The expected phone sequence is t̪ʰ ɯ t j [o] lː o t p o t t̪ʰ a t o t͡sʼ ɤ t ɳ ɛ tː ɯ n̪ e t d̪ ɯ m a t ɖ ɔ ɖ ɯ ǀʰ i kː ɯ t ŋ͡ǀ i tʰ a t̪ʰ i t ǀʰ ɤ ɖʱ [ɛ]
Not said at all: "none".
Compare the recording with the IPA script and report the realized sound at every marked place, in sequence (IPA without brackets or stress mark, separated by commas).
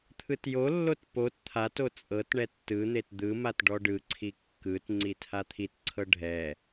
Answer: o, ɛ